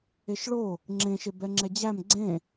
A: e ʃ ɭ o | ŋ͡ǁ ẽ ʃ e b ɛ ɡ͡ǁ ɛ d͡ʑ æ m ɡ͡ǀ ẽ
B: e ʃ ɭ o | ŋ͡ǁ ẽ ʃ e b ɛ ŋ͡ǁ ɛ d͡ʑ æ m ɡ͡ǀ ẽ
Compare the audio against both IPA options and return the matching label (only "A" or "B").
B